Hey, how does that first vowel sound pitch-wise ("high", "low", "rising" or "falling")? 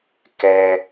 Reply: high